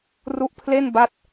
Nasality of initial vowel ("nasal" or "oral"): oral